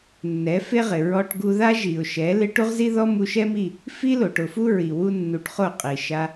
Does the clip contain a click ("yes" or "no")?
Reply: no